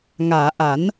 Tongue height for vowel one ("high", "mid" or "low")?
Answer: low